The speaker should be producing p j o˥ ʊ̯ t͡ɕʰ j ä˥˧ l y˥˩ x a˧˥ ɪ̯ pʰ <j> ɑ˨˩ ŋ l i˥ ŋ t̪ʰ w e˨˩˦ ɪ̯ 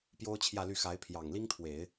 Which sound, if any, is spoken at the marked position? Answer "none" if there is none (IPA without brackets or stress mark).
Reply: j